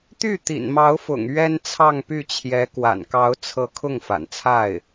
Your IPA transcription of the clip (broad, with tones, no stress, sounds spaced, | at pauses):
t̪ y˥˩ t̪ ḭ˨˩ n m ɑ˧˥ ʊ̯ f ʊ̰˨˩ ŋ ɥ ɛ˥ n t͡sʰ ɑ˥˧ ŋ p y˥˩ t͡ɕʰ j ɛ˧˥ k w a̰˨˩ n k ɑ˧˥ ʊ̯ t͡sʰ ɤ˧˥ kʰ ʊ˥˩ ŋ f a̰˨˩ n t͡sʰ a˥˩ ɪ̯